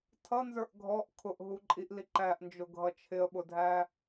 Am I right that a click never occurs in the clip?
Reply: no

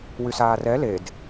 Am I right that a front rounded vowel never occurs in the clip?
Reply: no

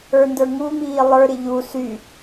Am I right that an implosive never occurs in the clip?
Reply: yes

